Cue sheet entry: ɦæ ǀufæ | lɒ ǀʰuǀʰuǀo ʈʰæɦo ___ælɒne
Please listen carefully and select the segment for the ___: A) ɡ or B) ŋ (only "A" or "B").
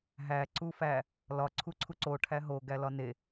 A